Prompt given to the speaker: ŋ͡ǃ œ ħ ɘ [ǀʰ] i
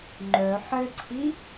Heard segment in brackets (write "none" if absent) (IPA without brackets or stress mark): ǀʰ